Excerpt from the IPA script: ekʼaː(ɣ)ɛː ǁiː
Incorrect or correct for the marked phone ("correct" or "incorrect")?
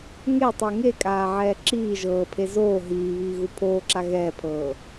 incorrect